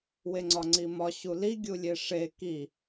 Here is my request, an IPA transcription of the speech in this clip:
w e ŋ͡ǀ ɒ ŋ͡ǀ i m ɒ ɕ u l i ɡʲ u lʲ e ʂ e k i

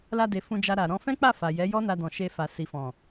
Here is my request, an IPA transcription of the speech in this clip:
l a˧ d e˨ f ũ˧ d͡ʒ a˧ ɾ a˨ ɾ ɔ̃˧ f ɛ̃˦ k͡p a˦˨ f a˨ j ɛ˨˦ j ɔ˦ n a˧ d ɔ̃˨ ʃ e˧ f a˨ s i˨ f ɔ̃˨

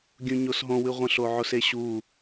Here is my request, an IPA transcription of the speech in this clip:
ɡʲ ũ ɲ o s ɦ õ w ɨ ʁʷ ə̃ ɬ o ʕ o s e ɕ u

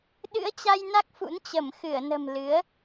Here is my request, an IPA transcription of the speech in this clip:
ɗ ɨ̰˧˥ ə̯ t͡ɕ a˧ j n a˦˥ k̚ f ṵ˧˥ n t͡ɕ ə˧˩ m x ɨ˧˩ ə̯ n ə̤˨˩ m l ɨ˨˦ ə̯

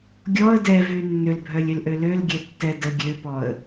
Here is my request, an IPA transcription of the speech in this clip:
ɡʲ ɔ ə̯ d ɛ v y nː ø l bʱ œ lʲ ø l ʔ ø l ø l ɡʲ ɛ tː ɛ d ə ɡʲ ø p ɔ ə̯

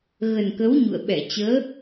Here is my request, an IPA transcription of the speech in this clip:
ɣ ə˨˩ n k ə˨˦ w ɲ ṵ˧˨ ə̯ ɓ ɛ˧˩ t͡ɕ əː˨˦

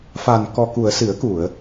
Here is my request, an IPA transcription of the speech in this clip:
f a˨˩ n k ɔ˨˩ k u˨˩˨ ə̯ s ɨ˨˩˦ ə̯ k u˨˩˨ ə̯

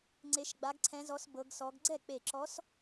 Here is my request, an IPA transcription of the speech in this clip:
ŋ͡ǀ e˧˥ ʃ ɡ͡b a˧˥ ɡ ǀʰ ɛ̃˧˥ z ɔ˧˥ s b ɤ˧˥ ɡ s ɔ˧˥ ɡ ɡ͡ǀ ɛ˥˩ k͡p e˧˩ ǁ ɔ˧˥ s

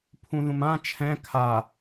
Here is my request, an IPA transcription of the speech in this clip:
pʰ ũ ð ũ m ã t͡ʃʰ ɛ̃ kʰ a

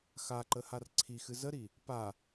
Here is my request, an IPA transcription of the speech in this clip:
x a ǃ ə h a r ǀʰ i x ɨ z ə ɾ i | p a

